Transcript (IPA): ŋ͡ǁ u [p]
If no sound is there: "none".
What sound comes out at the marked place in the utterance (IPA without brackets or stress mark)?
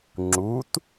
t